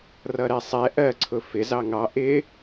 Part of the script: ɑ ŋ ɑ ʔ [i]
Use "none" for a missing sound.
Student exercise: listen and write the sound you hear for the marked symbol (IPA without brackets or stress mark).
ɪ